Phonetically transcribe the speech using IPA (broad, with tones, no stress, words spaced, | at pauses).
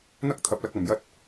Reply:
n̪ɐ˥k̚t̪ʰɐ˧p̚lɐ˧k̚ ɐ˨m jɐ˧t̚